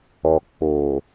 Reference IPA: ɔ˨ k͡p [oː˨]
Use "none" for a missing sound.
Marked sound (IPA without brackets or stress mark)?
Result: oː˨